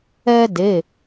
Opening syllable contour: high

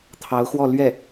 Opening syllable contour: rising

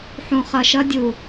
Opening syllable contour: low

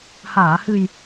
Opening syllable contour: low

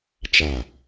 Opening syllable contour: falling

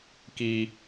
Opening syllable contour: low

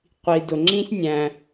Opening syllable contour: low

